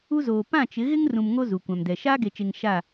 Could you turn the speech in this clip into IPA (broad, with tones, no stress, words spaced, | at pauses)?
u˦zoː˨ pã˦˨t͡ʃɪ˨˦ ɣɪ˦ŋ rũ˨mŋo˦ zu˨kʷã˨mdɛ˨ ʃaː˦ɡe˨t͡ʃe˨ŋ ʃa˦˨